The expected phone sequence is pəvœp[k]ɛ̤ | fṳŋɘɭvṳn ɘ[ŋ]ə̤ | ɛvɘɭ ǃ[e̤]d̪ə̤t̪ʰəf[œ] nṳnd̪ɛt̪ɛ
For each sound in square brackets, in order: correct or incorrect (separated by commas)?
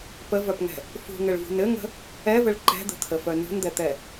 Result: incorrect, correct, incorrect, correct